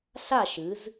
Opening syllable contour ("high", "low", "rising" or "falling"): falling